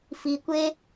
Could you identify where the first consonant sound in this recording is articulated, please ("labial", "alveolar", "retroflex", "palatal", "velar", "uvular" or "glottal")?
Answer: labial